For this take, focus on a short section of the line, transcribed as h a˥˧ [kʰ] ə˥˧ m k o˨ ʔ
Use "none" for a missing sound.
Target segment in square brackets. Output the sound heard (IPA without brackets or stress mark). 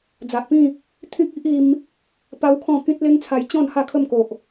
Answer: kʰ